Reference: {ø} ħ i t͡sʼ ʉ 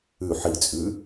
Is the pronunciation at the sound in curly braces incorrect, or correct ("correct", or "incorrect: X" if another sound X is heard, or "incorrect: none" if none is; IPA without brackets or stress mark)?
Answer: incorrect: ʉ